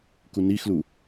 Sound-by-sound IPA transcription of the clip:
kunixlu

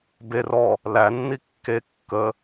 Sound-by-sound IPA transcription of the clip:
ber ɔ | lænːi kːe kːə

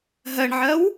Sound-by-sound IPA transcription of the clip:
ɦɜɳʕɜw

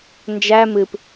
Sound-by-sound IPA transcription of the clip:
nd͡ʒæ mɨp

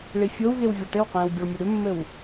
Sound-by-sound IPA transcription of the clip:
ɭifʲowɣew vʲɒʈɘwqẽːw bʲoɭmʲɘɽʉmːɘw

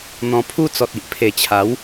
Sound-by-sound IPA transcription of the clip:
n̪ɔ̃˨˩ pʰu˦t͡sɔ˨t̚i˨ʔ pʰe˨˩t͡ɕʰa˨˦w

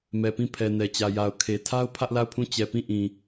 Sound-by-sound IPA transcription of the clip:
mɛ˨pĩ˦˨ pʰɛ˨nɛ˨t͡ɕä˨ja˨ʊ̯ kʰe˨tʰa˦ʊ̯ pʰä˦ʔla˦˨ʊ̯pʰũ˦˨ t͡ɕɛ˨pĩ˦˨ʔĩ˨

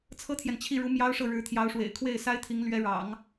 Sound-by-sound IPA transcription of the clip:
t͡sʰɤ˥t̪ʰjɛ˨nt͡ɕʰi˥˩ɻu˧˥ mjɑ˥ʊ̯ʂɤ˥˩ɻɻ̩˧˥ t̪ʰjɑ˧˥ʊ̯ʂwḛ˨˩ɪ̯ kʰwe˥˩ɪ̯sa˥ɪ̯t̪ʰi˧˥ŋ lɥɛ˧˥ ɻɑ̰˨˩˦ŋ

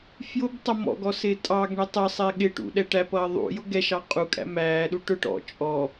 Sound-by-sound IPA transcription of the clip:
fjʊb tˤʌmɔ̰ɡɔ sɪːtʼɑɡɳɛ tˤɜsˤɛ ɠɪʈṵ ɗɛʈæpʌː ðˤṵjʊ ɡɛʃɑ qʼukʼæ̰ mæːɗu ʈʊʈ ɔ̰ t͡ʃʼɔ

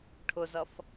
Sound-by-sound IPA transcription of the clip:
ʈʰʊzʌf

